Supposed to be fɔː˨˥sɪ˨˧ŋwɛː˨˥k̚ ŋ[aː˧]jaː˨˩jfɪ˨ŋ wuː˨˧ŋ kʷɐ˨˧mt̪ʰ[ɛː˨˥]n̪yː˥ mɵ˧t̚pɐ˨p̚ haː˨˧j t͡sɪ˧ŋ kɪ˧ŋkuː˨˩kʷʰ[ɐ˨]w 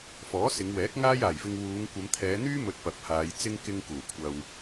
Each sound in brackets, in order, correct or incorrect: correct, incorrect, correct

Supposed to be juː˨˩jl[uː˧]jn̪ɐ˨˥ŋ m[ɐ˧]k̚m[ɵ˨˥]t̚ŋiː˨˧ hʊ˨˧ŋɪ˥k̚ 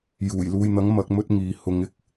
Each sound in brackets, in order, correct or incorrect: correct, incorrect, incorrect

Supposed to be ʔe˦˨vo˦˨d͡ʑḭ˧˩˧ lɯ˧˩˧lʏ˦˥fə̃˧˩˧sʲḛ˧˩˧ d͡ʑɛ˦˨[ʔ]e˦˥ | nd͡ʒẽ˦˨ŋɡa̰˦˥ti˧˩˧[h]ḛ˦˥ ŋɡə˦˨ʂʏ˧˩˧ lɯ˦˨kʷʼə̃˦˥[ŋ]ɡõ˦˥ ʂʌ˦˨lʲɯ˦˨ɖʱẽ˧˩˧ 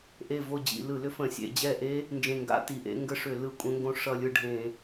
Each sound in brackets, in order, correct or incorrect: correct, incorrect, correct

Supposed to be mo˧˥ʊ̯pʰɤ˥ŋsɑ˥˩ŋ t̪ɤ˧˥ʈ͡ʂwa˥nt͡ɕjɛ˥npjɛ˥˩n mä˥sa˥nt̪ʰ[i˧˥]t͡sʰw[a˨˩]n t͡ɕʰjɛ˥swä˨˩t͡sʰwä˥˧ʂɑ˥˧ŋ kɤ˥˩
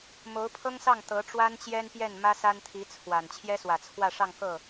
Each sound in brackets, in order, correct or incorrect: correct, correct

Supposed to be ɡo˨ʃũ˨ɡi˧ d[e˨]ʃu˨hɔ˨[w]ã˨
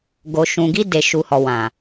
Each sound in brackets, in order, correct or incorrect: correct, correct

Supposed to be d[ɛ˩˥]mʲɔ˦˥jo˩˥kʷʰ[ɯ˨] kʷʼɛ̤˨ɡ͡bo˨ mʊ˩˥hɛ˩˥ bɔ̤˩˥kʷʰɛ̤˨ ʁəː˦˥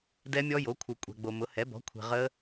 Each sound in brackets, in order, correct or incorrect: incorrect, correct

